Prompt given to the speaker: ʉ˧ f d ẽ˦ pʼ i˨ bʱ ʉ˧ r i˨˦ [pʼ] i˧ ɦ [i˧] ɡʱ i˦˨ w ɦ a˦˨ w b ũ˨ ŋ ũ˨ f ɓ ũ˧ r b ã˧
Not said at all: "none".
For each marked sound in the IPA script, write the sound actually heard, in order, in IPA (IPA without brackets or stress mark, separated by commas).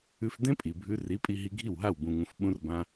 pʼ, i˧